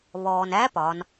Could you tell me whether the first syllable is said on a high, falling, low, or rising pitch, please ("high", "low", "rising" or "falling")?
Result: low